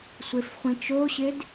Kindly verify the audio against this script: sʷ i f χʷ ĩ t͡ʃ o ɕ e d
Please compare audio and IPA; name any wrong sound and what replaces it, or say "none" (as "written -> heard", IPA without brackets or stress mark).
i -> e